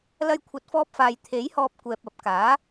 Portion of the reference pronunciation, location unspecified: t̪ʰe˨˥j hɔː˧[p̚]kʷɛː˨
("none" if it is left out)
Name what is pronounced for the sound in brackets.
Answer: p̚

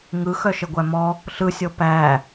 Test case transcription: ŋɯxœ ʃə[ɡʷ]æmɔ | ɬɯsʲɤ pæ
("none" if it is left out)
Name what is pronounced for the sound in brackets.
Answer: ɡʷ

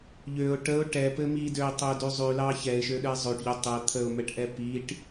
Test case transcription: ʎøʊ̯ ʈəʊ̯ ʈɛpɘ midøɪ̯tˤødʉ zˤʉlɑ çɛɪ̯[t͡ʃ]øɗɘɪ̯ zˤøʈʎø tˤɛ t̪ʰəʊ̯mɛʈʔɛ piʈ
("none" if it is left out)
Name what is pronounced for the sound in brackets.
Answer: ʃ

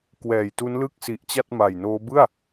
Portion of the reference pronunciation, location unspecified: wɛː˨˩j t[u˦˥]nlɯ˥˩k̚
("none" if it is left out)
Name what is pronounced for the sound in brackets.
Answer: u˦˥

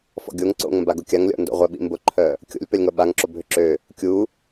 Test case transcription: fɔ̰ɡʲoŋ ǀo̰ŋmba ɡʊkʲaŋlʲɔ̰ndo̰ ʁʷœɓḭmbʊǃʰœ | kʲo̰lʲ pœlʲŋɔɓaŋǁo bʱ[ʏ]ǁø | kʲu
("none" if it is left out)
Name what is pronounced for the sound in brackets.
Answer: ʏ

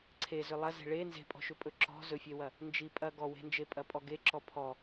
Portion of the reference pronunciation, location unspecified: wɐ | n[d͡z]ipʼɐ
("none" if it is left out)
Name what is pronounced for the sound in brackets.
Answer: d͡ʒ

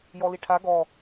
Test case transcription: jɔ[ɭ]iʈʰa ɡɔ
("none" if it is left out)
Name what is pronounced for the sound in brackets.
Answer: l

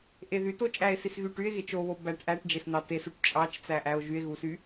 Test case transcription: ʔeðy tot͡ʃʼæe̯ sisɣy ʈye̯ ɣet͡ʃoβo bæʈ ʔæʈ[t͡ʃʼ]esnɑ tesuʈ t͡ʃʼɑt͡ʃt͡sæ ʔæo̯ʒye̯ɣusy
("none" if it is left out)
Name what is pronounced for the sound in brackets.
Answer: d͡ʒ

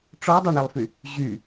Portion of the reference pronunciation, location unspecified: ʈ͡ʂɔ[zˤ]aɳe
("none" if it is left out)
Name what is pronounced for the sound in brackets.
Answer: dˤ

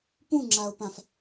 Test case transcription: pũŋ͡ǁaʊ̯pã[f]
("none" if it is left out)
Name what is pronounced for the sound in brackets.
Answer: f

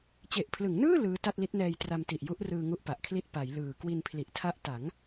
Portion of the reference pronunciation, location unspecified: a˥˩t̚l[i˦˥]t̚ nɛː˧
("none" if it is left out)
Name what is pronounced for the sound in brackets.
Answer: i˦˥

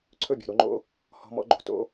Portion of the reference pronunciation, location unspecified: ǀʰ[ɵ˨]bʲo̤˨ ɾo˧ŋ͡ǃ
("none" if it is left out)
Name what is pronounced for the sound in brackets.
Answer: ɵ˦˨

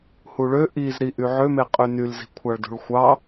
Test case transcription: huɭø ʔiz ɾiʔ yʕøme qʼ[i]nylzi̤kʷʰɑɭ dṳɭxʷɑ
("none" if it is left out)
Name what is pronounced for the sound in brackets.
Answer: y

